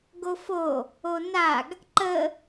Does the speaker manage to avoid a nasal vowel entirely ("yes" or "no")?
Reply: yes